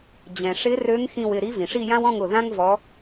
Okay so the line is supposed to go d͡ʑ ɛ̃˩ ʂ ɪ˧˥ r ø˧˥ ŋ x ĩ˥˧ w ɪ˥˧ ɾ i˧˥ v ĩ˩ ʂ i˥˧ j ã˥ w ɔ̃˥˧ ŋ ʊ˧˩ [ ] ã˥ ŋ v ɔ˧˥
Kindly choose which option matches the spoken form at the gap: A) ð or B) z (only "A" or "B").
A